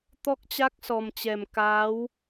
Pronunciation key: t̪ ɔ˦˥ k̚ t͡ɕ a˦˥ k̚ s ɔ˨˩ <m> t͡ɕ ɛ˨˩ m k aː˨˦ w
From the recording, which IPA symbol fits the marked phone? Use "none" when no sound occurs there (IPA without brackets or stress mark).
m